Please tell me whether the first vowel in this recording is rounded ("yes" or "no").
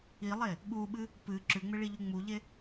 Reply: no